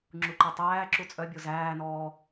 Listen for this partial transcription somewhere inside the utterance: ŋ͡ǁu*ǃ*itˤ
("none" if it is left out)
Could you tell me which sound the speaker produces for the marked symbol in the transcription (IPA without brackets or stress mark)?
ǃ